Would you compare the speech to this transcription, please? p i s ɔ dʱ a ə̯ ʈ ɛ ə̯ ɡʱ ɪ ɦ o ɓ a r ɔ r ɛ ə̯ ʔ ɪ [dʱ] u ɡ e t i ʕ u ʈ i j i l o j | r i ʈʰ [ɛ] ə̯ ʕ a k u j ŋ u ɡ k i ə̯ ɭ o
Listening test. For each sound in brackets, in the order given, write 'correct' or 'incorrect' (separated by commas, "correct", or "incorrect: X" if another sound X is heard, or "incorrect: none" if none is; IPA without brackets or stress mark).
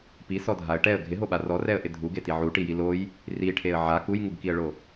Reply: correct, incorrect: e